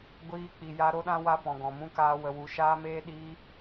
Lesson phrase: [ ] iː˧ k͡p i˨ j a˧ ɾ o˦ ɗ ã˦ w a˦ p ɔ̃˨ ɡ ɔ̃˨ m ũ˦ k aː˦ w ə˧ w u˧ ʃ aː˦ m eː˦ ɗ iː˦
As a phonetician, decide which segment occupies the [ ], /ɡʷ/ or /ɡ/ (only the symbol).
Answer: ɡʷ